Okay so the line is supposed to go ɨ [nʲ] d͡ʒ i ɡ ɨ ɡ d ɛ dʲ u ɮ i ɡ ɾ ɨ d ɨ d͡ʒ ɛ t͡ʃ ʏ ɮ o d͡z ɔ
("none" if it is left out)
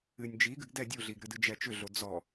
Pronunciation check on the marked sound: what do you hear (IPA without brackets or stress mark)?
nʲ